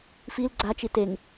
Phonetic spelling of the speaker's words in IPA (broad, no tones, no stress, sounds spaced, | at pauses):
f i l ɡ͡ǀ a t͡ʃ i t e ŋ